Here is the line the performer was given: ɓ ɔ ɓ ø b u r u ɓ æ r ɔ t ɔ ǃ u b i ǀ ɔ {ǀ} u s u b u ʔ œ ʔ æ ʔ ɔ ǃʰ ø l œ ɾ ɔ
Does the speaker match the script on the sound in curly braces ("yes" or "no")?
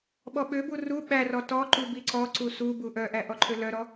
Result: yes